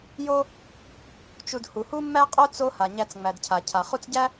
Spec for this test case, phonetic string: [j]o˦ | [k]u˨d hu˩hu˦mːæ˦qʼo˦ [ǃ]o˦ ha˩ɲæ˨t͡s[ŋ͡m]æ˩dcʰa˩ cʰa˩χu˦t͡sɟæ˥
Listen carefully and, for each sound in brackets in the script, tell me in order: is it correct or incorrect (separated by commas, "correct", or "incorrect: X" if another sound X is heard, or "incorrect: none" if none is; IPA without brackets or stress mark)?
correct, incorrect: t͡ʃ, incorrect: t͡s, correct